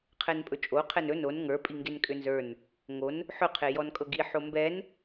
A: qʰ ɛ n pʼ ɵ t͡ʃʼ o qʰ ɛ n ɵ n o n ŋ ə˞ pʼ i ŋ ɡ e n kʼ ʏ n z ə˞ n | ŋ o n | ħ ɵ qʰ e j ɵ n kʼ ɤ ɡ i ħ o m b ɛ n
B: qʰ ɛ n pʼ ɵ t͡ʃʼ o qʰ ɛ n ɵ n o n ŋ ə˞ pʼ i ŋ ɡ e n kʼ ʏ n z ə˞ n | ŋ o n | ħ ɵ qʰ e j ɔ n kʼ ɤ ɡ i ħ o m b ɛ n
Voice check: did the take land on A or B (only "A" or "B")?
B